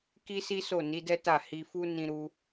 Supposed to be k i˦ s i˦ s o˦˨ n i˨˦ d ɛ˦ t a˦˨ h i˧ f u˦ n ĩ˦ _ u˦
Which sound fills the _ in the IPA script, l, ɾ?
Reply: ɾ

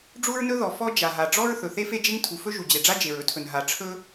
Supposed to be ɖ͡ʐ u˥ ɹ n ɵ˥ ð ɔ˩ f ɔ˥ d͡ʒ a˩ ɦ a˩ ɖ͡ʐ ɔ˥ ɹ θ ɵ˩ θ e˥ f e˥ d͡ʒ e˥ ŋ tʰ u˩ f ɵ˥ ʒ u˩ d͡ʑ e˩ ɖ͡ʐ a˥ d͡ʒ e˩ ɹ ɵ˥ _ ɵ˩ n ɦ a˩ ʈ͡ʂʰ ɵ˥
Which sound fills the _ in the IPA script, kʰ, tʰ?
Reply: tʰ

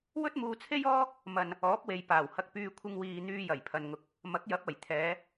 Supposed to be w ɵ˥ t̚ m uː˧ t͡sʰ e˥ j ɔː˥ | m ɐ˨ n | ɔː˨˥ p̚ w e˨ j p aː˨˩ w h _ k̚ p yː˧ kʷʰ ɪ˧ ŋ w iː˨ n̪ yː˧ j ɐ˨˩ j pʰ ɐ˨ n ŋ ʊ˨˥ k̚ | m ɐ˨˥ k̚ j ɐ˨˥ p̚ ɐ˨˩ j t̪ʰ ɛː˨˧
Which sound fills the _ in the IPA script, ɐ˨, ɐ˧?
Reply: ɐ˧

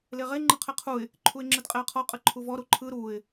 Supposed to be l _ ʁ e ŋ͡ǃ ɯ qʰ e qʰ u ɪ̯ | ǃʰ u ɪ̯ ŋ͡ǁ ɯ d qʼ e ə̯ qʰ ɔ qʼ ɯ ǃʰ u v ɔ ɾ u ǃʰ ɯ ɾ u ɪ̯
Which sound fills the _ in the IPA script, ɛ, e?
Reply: e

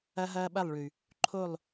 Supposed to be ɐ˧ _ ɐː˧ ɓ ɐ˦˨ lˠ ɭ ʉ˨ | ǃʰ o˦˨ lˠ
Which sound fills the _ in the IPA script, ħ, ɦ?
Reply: ɦ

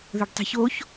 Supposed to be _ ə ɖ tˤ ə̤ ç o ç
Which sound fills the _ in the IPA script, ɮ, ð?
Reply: ð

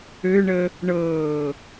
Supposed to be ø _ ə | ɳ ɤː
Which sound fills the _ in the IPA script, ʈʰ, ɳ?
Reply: ɳ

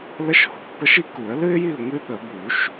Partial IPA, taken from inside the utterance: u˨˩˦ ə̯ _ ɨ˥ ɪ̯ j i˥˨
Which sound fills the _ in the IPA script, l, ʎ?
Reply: l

